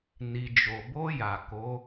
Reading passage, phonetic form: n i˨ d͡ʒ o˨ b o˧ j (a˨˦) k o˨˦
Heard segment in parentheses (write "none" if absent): a˨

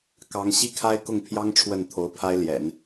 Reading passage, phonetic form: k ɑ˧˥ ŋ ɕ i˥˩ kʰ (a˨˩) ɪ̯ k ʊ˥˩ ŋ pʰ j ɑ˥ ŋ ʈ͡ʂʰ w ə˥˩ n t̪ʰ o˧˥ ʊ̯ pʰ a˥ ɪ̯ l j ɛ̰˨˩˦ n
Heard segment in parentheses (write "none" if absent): a˥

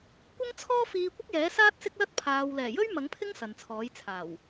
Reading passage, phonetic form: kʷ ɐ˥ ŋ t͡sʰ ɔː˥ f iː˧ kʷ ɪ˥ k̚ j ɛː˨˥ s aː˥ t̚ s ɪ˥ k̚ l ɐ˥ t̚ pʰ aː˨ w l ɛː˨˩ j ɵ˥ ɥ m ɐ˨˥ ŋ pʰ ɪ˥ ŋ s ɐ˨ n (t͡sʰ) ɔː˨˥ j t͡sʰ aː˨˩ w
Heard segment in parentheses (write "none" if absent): t͡sʰ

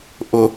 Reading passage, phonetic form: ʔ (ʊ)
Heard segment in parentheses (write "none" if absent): ʊ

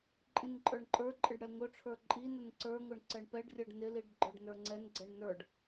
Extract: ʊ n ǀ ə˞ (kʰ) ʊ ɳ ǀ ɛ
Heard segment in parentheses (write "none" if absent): ŋ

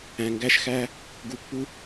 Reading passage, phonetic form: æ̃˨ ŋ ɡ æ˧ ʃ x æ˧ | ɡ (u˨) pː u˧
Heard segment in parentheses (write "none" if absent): u˨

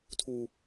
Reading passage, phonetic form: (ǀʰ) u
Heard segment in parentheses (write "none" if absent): tʰ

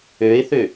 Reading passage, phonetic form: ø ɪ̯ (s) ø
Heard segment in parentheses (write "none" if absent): θ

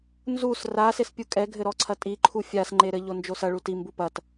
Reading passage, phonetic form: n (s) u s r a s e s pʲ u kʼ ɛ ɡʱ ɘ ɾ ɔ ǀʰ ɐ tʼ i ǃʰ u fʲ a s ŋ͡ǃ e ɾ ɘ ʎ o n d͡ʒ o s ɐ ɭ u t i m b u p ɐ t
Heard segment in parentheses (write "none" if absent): z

